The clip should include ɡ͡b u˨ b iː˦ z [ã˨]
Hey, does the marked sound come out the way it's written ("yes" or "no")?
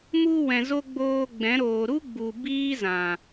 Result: yes